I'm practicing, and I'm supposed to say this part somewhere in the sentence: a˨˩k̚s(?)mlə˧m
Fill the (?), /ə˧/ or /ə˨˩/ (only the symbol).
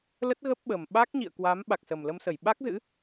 ə˨˩